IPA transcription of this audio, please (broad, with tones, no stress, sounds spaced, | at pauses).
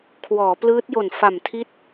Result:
kʰ w ɔː˩˦ p l ɯː˦˥ t̚ j o˨˩ n f a˨˩ m tʰ i˦˥ t̚